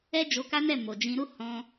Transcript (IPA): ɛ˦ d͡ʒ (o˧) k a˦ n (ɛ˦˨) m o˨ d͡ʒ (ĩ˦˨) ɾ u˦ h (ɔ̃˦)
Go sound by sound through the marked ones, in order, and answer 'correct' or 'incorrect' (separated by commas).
correct, correct, incorrect, incorrect